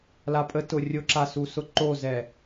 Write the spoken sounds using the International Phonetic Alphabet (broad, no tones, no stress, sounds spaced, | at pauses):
l a pʼ ə t ʊ rʲ ʊ ǁ a s u s ʊ ǃ o z ɛ